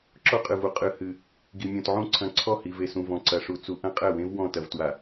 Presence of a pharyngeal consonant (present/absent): present